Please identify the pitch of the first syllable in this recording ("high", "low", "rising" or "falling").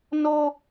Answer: high